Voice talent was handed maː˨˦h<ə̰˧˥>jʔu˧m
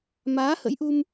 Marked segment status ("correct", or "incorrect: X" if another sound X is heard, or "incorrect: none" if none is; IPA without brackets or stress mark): correct